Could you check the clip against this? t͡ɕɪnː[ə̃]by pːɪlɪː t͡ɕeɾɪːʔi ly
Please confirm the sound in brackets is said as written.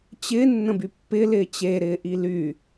yes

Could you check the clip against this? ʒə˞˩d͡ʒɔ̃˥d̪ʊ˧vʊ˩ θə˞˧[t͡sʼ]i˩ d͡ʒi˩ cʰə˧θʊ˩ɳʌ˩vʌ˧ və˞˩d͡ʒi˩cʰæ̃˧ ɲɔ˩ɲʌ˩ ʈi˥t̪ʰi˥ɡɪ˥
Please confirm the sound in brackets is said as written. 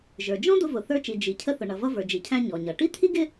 no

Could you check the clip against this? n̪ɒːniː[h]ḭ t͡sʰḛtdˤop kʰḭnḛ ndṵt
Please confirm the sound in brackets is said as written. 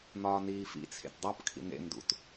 no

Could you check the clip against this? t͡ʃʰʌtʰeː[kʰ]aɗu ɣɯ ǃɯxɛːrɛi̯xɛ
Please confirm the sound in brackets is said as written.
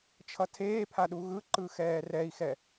no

